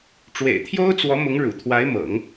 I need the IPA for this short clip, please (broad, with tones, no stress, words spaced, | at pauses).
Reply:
ʈ͡ʂwḛ˨˩ɪ̯t̪ʰjo˥ʊ̯t͡swɔ˧˥ mʊ˧˥ŋɻṵ˨˩t̪ʰwa˧˥ɪ̯mɤ̰˨˩˦ŋ